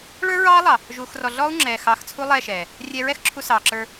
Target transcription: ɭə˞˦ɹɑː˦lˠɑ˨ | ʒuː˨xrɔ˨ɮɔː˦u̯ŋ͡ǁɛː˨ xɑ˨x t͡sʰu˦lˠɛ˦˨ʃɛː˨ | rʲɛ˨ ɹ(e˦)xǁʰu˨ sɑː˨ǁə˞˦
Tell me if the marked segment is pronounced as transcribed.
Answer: no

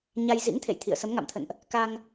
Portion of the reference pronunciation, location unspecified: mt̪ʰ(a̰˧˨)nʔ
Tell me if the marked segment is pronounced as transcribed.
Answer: no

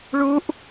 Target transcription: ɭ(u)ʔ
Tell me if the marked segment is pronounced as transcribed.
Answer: yes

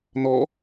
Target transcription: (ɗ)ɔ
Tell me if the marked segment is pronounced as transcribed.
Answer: no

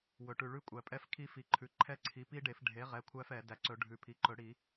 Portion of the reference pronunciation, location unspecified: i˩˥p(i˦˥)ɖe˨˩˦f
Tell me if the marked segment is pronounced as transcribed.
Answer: yes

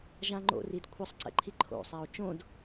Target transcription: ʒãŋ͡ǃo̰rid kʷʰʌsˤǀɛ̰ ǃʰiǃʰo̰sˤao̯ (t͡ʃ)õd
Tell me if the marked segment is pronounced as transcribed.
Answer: yes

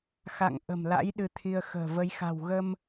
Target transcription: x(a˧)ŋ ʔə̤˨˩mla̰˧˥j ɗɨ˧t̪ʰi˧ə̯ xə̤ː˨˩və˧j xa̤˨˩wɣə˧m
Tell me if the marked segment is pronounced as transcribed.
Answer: no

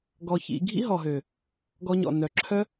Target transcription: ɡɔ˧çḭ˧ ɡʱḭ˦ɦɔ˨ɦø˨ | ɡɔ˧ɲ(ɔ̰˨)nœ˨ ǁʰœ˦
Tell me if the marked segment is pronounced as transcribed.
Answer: yes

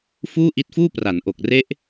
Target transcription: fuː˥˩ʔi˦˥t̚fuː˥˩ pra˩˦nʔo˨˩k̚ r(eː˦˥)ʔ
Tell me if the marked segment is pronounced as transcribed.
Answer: no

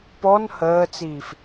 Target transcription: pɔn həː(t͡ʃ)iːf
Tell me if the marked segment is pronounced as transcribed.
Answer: no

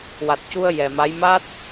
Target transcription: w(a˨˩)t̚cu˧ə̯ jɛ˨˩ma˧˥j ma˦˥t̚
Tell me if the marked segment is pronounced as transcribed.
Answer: yes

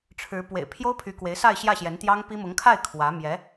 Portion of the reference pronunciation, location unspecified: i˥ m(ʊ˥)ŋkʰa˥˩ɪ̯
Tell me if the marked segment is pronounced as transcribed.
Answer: no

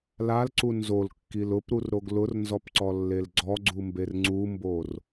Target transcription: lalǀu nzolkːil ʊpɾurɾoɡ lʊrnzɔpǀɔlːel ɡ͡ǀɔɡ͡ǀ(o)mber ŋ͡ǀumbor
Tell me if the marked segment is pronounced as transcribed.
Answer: no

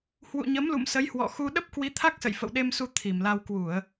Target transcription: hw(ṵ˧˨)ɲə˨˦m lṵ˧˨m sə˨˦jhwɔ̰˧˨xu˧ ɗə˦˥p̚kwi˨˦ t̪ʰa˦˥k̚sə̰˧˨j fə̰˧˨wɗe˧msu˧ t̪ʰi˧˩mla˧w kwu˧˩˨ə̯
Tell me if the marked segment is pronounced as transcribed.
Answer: yes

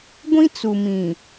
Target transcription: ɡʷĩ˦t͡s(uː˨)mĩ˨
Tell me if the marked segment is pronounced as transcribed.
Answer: no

